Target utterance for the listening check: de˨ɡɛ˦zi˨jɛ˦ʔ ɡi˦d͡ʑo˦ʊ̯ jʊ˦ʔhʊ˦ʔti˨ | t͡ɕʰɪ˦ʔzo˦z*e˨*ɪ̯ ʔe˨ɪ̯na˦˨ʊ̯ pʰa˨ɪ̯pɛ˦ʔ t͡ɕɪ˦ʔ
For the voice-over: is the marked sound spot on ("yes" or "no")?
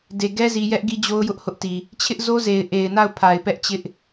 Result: yes